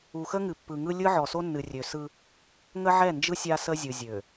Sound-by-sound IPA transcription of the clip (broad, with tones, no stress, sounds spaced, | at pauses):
u˨ x ə˦ ŋ ɨ˨ pː ɯ˨ ŋ ɯ˦ lʲ ɯ˦ ʕ ɔ˨ s o˦ nː ɨ˨ rʲ ø˨ s ɯ˦ | ŋ ə˦ ʕ ɛ˦˨ n d͡ʒ ɯ˦ sʲ a˦ s ə˦ zʲ ɯ˨ zʲ ø˨